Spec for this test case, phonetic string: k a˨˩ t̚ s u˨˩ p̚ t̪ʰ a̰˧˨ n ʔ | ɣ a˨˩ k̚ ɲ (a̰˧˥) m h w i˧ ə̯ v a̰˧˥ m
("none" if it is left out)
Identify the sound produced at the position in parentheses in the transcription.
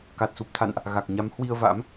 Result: a˨˦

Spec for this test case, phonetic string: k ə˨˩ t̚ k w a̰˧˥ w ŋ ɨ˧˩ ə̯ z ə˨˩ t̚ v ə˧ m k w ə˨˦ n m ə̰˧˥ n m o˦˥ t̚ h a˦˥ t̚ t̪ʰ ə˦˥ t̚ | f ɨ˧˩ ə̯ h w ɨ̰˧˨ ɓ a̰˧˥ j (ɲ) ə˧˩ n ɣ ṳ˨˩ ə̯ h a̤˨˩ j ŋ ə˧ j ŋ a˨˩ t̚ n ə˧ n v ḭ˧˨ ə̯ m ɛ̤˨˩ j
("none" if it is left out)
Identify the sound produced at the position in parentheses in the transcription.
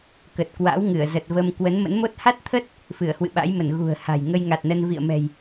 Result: m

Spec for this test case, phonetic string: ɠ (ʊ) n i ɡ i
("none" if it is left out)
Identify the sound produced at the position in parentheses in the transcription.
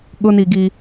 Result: ʊ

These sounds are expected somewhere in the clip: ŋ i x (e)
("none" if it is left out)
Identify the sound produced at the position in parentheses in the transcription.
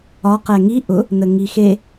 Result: e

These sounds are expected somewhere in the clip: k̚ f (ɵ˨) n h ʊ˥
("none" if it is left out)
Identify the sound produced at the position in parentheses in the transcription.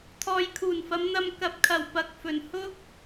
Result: ɵ˨˩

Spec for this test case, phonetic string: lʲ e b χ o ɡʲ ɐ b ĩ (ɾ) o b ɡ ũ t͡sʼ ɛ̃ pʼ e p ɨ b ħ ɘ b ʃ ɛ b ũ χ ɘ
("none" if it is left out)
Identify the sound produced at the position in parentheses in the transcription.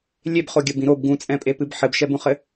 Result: ɾ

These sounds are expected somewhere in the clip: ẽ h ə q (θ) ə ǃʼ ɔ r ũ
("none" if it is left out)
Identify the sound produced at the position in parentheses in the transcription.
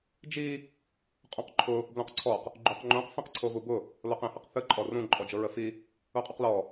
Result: θ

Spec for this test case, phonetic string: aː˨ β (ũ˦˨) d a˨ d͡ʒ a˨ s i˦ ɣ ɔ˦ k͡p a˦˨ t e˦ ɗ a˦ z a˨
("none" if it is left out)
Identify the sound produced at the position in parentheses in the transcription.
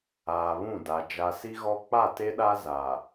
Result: ũ˦˨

